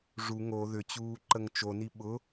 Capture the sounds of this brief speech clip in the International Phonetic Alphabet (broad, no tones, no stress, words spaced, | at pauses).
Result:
ʐu ŋo ðʏt͡ɕuː ǃəŋt͡ʃoni ɓʊ